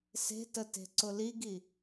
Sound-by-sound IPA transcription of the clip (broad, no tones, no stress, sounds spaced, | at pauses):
s e̤ t ə t e̤ ǀ ʊ l i ɡ i